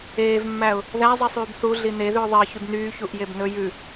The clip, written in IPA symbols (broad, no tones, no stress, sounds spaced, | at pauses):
eː v mː æ ʊ̯ | ð æ zˤ i sˤ yː b θ u ɮ i n e ð ʉ ʊ̯ ðˤ e ə̯ ç y b n yː ç u ʔ j e b n ɵ j ʉ